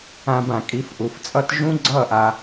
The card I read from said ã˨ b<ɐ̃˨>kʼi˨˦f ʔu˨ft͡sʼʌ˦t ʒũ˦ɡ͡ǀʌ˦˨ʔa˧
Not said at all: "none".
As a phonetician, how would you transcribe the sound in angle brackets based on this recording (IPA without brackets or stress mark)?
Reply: ã˨